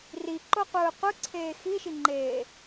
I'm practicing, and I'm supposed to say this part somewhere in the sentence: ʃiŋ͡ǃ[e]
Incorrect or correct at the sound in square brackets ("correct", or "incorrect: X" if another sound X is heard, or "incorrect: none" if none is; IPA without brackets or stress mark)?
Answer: incorrect: eː